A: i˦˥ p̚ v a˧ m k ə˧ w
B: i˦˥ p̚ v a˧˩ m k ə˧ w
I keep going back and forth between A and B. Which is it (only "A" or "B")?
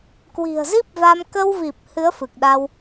A